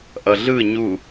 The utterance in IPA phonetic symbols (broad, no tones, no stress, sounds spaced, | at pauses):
ʔ ʌ ɮ ɯ ɲ u